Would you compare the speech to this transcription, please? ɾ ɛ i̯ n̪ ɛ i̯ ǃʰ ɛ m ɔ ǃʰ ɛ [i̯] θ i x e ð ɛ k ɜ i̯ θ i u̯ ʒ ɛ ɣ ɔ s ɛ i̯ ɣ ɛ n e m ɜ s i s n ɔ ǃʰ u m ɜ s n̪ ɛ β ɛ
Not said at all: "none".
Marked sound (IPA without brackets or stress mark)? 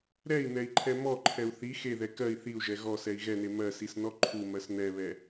u̯